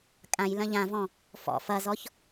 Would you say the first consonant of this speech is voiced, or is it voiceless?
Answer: voiceless